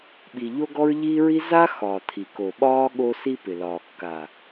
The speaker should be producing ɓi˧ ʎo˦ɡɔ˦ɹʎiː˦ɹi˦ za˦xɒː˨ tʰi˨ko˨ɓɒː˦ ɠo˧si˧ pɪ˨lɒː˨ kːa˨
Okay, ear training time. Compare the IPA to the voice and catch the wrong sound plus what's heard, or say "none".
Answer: none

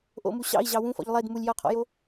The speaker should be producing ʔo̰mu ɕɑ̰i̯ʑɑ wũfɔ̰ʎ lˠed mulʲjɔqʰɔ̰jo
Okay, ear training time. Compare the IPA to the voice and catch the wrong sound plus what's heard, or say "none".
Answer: none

